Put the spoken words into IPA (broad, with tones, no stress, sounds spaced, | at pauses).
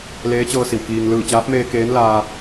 l eː˧˥ t͡ɕ ɤː˧ s i˩ w k iː˩ ŋ l ɯː˧˩ t͡ɕ aː˧˥ p̚ m eː˧ k eː˧˥ n l aː˧